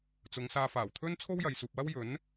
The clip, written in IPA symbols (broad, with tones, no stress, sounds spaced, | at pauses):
t͡s ʊ˨˧ ŋ s aː˧ f aː˨˩ w t̪ʰ ɵ˥ n t͡sʰ o˥ w j ɐ˨ j s uː˨ p̚ w ɐ˥ w j ɵ˨˥ n